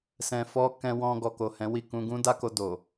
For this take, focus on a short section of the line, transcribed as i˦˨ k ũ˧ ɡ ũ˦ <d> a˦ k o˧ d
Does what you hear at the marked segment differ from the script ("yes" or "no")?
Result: no